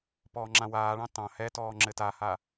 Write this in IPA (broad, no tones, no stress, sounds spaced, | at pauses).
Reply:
p ɔː ŋ͡ǁ ã w aː ɭ ɑ̃ t ɑ̃ h ɛ t ɔː ŋ͡ǁ ɘ t a h a